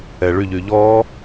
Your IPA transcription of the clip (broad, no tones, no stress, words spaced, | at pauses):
ɛɭyʎy ʎɔ